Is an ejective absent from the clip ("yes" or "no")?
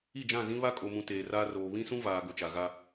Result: no